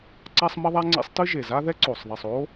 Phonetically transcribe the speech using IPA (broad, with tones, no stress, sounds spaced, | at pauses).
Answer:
ǀ a˥ sˤ m ɐ˥ ðˤ a˥ ŋ͡ǀ ḛ˥ sˤ t ɨ˥ ʒ e˩ z a˥ ð ɛ˥ ǀ o˩ sˤ ðˤ i˩ sˤ o˥